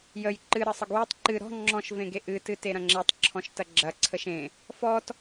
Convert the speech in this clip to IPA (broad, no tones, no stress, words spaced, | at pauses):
jəj ǃɨ ɾəsˤəɡwetˤ ǃɨ ɾɔ̤ ŋ͡ǁɔ̃ʃ vẽɡeʔɨ tɨteɾɐ̃ŋ͡ǁetˤ ǁʰɔ̃ʃtɐɡ͡ǁɐ ǀʰəʃẽ | fɔt